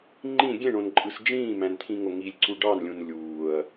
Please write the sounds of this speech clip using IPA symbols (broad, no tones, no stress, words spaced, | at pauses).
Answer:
ŋ͡ǃĩ ɡʲẽɳõnǃʼɯs d͡ʒĩːmæ̃nt̪ʰĩŋo ŋilʲǀu ɖɑnlʲũn lʲuːɐ̯